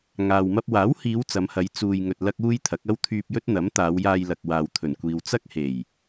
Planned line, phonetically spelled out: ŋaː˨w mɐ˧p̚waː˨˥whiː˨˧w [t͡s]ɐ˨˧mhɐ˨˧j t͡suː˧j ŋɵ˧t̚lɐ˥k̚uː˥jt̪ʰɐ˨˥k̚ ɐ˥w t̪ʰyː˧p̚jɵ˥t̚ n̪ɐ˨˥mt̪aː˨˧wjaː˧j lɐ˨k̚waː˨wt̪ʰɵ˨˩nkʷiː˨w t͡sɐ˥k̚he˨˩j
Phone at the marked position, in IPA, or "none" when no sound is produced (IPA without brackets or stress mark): t͡s